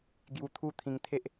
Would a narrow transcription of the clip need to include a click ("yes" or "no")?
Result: no